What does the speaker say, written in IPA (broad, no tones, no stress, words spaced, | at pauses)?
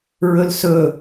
ɹɵlsɵ